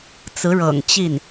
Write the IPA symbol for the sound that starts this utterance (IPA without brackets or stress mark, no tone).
t͡s